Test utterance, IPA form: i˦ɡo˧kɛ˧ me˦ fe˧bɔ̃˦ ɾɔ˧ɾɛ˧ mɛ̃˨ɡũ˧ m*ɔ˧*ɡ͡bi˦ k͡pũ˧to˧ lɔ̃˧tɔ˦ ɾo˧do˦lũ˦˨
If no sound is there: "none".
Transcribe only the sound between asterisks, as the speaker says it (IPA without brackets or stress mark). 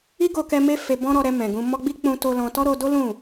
ɔ˧